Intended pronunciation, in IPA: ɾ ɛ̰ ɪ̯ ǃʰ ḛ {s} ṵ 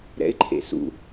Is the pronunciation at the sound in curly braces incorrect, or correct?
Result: correct